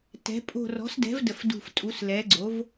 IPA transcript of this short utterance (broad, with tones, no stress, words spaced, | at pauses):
tɛ̤˩˥ pʼo̤˧˩rɔ̤˩˥sdɛ̤˩˥v də˧˩fdṳ˧˩f tʼu˩˥slɛ˩˥ɡ͡ǀo˩˥v